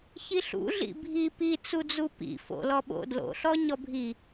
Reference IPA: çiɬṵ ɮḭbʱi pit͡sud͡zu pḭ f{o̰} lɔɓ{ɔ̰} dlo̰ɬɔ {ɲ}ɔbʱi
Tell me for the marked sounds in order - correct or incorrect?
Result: correct, incorrect, correct

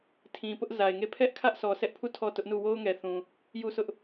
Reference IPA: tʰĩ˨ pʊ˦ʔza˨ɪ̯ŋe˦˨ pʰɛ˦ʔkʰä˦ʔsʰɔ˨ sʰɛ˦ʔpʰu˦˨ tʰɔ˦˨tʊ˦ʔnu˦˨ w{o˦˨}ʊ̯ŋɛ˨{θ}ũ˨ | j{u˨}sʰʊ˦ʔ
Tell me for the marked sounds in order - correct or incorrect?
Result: incorrect, correct, incorrect

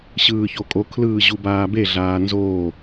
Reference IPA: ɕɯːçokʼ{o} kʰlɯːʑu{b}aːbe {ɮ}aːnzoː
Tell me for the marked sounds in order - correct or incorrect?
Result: correct, correct, correct

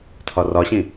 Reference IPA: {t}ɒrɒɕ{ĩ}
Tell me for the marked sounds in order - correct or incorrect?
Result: incorrect, correct

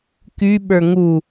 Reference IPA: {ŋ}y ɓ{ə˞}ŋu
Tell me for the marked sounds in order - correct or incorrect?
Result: incorrect, correct

